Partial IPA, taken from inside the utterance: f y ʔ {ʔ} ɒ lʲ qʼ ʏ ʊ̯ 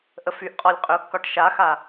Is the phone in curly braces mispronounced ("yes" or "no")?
yes